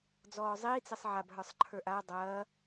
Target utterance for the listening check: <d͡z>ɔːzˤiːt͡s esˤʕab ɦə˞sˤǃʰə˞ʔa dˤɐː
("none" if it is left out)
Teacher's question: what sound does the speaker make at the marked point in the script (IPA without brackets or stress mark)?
d͡z